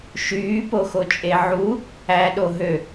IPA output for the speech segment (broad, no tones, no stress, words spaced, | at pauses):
ʃyːpoxot͡ʃʼe ʕu | æɗo ɦø